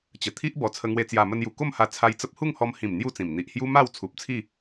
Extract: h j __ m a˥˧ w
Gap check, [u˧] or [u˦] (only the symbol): u˦